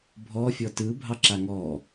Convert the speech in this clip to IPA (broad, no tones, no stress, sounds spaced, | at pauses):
bʱ ɔ fʲ ɔ t ɯ bʱ ɑ ǁ a ŋ ɔ